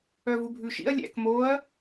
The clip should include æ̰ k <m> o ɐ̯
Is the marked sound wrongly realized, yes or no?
no